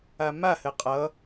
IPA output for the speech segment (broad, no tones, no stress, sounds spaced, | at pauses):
a m a h ɘ qʼ ʌ